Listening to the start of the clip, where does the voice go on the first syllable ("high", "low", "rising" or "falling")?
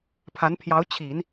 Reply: rising